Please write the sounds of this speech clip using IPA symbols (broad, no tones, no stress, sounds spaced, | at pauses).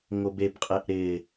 ŋ o b e b qʼ e ʔ ɾ ɪː